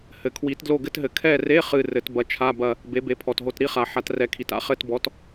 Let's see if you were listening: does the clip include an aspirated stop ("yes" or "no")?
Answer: yes